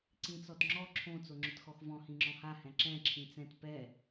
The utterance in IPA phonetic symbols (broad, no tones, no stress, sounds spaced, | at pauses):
ǀ ĩ t͡s ɔ t ŋ͡ǁ ɔ ǁʰ õ t͡s o ŋ͡ǁ ʊ t x ɔ x v ɔ̃ h ĩ ŋ͡ǁ ɔ̃ h a h ɛ̃ ǁ ɛ̃ ǁʰ ĩ t͡s ɛ̃ t p ɛ